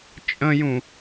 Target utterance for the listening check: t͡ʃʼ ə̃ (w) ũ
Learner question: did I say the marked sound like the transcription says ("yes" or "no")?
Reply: no